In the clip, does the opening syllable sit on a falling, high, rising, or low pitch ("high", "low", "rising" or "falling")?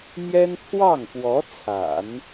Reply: high